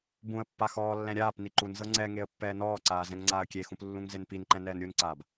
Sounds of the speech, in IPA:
bũə̯pːa xɔːlːɛ̃ ɾʲaːp niǃunzɤ ŋ͡ǀɛ ŋeə̯pːɛːnɔːǀaː zɛ̃ŋŋ͡ǀaːə̯kʲexũp lːũŋzenpinǃɛ̃ nɛːnɾʲunǀaːb

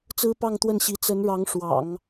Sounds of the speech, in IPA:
t͡sɹ̩˥pɑ˥˧ŋt̪wə˥˩nɕi˧˥ t͡sə˧˥nɻɑ˧˥ŋʂwɑ̰˨˩˦ŋ

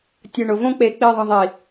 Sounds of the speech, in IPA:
tʲɯ˨ɳʊ˨võ˦ k͡pe˧ k͡pi˦˨ðˤə̃˧ðˤi˨

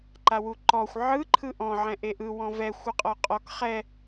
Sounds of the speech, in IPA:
ǃawuǃɔxʷ ʕɯ ǃʰɯʔɔ̃ ʕɛ̃ʔeʔɯ wɔ̃vɛ xʷɯqʼɔqʼɔk χɛ

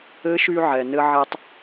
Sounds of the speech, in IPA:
ɘ˧˥ʃy˧ʕɛ˩ nɘ˧ʕɛ˧tˤ

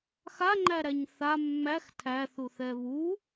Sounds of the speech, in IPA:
xaŋ͡ǃæɾæɲ θa mːæx tʰæθuθɛ βu

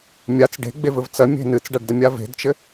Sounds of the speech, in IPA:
mʲat͡s ɖe̤ɡ͡bevɘv t͡sɐmʲe̤ nɨt͡sɖaɖdɐmʲa ve̤dt͡ʃɘ

